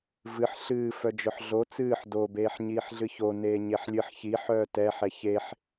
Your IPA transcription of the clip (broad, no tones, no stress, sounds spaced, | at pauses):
v ɨ ħ ɬ ɨː f œ d͡ʒ œ ħ ɮ o t͡s ɨː ħ d o b eː ħ ɲ iː ħ ɮ ɨ ç o n eː ɲ e ħ lʲ ɨ ħ ç i ħ œː t ɛ ħ ɛ ç e ħ